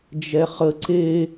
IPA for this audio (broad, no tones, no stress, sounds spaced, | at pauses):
d͡ʒ ɛ χ ə ǀ e